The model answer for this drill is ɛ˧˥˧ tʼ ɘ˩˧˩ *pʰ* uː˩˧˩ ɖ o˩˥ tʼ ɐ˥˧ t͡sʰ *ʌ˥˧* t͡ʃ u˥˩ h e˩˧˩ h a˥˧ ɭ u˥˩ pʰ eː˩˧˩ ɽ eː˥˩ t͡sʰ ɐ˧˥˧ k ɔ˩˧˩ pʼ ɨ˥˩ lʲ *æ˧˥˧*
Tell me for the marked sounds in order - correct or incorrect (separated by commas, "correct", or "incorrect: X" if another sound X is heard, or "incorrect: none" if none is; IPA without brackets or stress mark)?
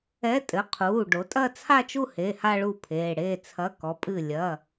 incorrect: qʰ, incorrect: a˥˧, incorrect: ɐ˧˥˧